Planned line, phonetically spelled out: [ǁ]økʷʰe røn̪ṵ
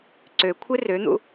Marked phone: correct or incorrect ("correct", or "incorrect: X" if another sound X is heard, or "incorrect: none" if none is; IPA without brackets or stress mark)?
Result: incorrect: ǀ